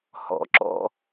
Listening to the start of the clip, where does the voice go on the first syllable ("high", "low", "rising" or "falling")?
low